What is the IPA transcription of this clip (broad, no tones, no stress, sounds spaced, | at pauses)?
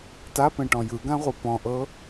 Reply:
t a p ẽ ʈ ɔ̃ j ɯ ɡ ã ʁʷ ɯ p ɔ̃ ʔ ɤ